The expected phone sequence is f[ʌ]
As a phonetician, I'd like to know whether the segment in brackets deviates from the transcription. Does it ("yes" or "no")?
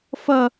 no